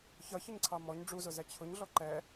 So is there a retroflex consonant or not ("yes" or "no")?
yes